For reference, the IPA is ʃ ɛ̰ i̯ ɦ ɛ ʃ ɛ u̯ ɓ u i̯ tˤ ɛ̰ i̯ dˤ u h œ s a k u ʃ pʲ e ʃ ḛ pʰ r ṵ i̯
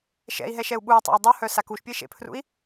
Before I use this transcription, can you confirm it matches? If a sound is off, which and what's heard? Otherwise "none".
none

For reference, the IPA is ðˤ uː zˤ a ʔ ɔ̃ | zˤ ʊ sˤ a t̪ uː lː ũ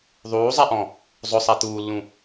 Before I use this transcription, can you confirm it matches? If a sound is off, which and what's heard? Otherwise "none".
none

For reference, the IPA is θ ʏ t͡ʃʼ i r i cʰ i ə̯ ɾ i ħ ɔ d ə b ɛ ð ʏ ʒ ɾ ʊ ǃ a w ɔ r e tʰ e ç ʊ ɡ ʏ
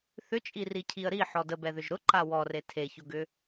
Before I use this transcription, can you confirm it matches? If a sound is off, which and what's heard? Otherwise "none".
none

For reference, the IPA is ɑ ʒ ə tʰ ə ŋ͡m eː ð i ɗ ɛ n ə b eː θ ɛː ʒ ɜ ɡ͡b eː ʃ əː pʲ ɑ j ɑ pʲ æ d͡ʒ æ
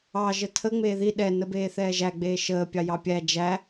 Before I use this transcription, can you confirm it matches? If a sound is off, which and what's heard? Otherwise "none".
ɜ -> æ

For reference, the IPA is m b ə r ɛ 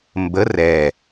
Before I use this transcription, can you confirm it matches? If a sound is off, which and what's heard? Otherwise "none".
none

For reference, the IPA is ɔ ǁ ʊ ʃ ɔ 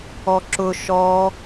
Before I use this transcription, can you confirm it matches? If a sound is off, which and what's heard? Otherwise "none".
none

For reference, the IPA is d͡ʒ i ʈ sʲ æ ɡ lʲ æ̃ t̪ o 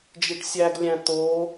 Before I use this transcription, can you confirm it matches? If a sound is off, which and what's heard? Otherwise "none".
none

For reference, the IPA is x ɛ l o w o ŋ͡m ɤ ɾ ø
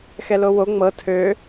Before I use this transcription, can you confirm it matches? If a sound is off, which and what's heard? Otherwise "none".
ɾ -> tʰ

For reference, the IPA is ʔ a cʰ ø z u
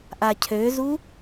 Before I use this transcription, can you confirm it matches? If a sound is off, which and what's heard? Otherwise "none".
none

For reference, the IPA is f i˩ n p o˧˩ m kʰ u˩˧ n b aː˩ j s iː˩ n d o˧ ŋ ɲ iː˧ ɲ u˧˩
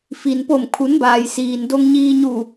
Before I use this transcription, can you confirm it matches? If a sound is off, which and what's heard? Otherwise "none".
none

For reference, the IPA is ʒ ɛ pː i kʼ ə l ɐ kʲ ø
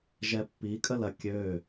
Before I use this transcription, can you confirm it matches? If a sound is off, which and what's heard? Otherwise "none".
none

